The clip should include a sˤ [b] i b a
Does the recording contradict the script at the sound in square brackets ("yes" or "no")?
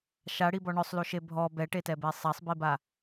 no